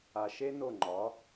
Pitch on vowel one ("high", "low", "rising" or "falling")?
low